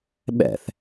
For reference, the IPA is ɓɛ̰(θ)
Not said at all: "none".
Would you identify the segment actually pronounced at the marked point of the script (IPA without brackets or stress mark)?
θ